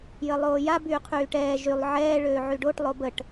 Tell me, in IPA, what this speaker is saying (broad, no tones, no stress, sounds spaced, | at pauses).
j ə lˠ oː j a b yː qʰ yː ʈ ɛː ʒ y lˠ ʕ ɛː ɭ øː ʕ y ɖ o ʈ lˠ o b ə ʈ